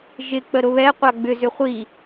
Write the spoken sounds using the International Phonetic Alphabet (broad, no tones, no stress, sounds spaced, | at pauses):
ʒ ɪ k͡p ə ɾ ʊ β ɛ qʷ a ɡ͡b ʏ z ʏ χʷ i